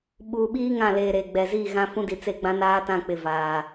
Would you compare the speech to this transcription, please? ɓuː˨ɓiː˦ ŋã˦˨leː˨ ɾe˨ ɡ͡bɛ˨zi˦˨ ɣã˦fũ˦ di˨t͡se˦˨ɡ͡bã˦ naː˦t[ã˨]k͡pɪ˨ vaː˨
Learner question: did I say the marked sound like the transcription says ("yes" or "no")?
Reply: no